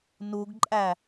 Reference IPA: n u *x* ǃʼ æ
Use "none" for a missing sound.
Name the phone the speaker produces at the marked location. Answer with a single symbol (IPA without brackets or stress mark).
ɡ